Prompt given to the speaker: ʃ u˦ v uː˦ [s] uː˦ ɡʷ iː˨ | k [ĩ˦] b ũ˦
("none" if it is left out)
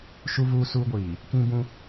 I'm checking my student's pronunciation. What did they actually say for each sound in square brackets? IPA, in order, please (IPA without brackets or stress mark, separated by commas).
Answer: s, ĩ˦